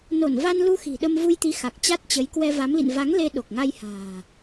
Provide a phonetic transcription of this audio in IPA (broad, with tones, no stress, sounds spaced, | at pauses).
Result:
n o˧˩ n v a˧ n l u˧ x i̤˨˩ ɗ ə˧ m v u˧ j t̪ i˨˦ x a˨˩ k̚ t͡ɕ a˦˥ t̚ t͡ɕ ə˨˦ j k w ɛ˧ v a˨˦ m l ḭ˧˨ n v a˨˦ ŋ l e˧ ɗ o˨˩ k̚ ŋ a˧ j h a̤ː˨˩